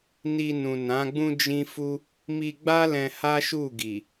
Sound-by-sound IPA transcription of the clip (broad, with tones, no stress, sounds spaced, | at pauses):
n i˧ n ũ˨ n ã˨˦ ɡ͡b ũ˦ d͡ʒ ĩ˦ f u˦ | m i˧ ɡ͡b a˦ l ɛ̃˧ h a˦ ʃ u˦˨ ɡ i˨